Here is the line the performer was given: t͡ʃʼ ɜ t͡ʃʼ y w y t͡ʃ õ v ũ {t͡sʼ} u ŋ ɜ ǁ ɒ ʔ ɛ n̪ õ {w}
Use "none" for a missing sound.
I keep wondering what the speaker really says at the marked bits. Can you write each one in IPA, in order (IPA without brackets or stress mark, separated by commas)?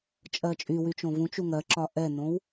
t͡ʃ, w